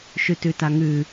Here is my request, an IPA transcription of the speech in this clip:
ʃʉtʉtaŋʉ

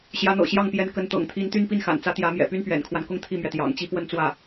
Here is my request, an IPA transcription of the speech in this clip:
ɕjä˧˥n̪ɤ̰˨˩ɕjɑ˥˩ŋ pjɛ˧˥nkə˧˥n t̪ɤ̰˨˩ŋt̪ʰi˧˥nt̪y˥˧n pi˥˩nxa̰˨˩nt͡sä˧˥ t̪jä˧˥mjɛ̰˨˩ py˥npɥɛ̰˨˩nkʰwa˦nkʊ˥˧ŋ t̪ʰi˥˩mɥɛ˩t̪jɑ̰˨˩ŋt͡ɕi˥ pwə˥˧nt͡swä˥˩

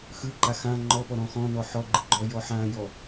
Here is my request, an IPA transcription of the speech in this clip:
xɯǃa xã ŋ͡ǃɔpɔ ɾɔ̃xɔ̃nɔ ħɔɡ͡ǃɯ ɡ͡ǃɔjɔ ħãjɔ

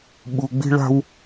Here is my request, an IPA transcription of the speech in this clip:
ɓu˨ɡ͡bi̤˦ ɭa̤˦w

